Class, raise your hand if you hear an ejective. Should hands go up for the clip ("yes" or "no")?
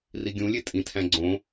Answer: yes